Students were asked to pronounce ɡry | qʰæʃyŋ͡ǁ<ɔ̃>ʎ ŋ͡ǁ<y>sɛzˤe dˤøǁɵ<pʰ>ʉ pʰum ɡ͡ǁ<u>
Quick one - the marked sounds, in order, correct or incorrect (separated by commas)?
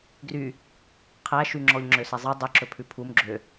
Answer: incorrect, incorrect, correct, incorrect